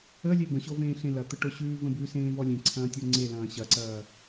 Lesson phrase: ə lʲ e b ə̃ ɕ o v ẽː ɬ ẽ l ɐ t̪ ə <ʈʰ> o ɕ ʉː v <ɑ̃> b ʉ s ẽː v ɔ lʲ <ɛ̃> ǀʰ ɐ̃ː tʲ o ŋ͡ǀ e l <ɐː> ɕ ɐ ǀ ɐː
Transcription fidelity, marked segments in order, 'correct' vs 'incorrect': incorrect: ʈ, incorrect: ə̃, incorrect: ẽ, incorrect: ɐ̃ː

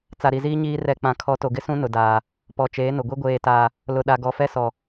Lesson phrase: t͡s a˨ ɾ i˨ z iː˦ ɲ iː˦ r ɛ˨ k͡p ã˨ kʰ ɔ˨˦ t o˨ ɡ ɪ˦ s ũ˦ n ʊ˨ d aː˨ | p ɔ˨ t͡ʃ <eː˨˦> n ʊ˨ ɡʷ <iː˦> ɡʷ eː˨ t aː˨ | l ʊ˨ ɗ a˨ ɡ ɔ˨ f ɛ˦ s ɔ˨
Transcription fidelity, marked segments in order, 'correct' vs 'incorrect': correct, incorrect: i˦

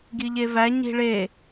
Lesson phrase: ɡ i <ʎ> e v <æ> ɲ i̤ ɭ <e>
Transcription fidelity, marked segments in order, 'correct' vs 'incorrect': correct, correct, correct

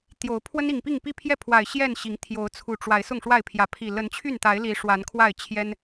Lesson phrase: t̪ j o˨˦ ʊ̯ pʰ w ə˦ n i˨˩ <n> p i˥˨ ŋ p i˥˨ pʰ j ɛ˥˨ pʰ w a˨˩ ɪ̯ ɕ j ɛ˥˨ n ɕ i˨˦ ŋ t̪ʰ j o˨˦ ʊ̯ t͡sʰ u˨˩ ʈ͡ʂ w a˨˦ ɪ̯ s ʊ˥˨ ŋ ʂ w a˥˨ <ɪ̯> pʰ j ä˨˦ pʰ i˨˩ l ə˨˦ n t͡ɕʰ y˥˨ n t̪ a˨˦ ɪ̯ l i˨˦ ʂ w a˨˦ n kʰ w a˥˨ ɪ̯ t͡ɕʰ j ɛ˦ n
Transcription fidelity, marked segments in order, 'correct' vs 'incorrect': incorrect: ŋ, correct

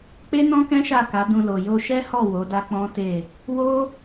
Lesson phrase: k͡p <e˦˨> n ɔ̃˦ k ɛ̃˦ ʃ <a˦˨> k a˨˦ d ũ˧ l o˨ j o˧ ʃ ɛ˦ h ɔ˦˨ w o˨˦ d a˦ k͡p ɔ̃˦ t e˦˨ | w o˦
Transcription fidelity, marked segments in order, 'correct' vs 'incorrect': incorrect: e˦, correct

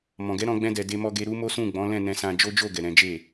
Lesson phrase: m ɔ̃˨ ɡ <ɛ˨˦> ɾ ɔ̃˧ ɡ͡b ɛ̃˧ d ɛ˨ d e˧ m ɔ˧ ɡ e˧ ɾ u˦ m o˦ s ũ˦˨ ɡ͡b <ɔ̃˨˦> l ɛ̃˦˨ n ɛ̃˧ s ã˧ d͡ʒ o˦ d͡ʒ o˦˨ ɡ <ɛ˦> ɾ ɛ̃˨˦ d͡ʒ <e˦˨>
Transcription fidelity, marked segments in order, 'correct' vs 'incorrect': correct, correct, incorrect: ɛ˨, correct

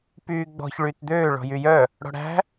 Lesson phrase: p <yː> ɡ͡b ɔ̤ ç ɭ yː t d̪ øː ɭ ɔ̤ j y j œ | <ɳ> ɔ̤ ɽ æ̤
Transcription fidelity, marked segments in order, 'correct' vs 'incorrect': correct, incorrect: ɽ

